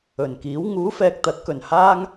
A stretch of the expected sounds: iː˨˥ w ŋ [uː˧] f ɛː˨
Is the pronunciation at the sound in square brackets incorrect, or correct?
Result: incorrect